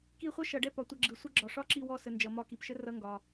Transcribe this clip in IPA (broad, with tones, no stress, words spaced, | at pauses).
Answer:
ki˦˨χʷɤ˥ʃʌ˨˩˦ɖɛ˦˨ pɒ˨tʷʌ˦˨ɡ͡ǁɯ˨˩˦ sʷə˥ ɡ͡ǁɒ˨ʂɒ˥ǁi˦˨ wɔ˦˨sə˨ nd͡ʒʌ˨˩˦mɒ˦˨ ki˨pʃə˥rʌ˧˥˧ ŋɡɒ˨